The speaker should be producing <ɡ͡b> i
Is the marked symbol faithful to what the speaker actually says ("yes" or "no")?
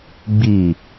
yes